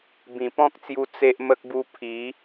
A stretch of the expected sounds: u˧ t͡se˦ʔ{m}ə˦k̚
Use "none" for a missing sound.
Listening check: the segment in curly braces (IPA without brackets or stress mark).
m